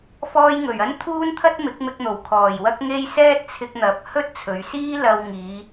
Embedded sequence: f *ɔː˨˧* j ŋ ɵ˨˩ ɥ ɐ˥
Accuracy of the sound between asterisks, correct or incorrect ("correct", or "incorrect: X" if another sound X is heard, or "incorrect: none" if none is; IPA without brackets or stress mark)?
incorrect: ɔː˧